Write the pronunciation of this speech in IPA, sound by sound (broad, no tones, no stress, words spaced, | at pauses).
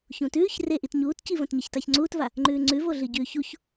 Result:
çũtʉːç reʔit ɲuːtcivɐ̃t ɲɐçtaçŋ͡ǀuːtva | ŋ͡ǃʉːŋ͡ǀʉvoɮɨ ɟʉːçuç